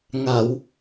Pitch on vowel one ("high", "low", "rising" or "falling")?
low